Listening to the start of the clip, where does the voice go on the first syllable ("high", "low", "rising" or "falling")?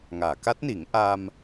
low